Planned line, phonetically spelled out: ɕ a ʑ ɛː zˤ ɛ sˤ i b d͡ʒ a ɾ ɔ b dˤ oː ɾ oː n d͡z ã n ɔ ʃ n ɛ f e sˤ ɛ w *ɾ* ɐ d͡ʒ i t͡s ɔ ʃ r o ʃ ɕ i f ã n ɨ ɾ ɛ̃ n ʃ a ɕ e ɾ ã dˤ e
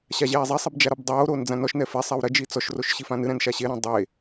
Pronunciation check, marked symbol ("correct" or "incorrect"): correct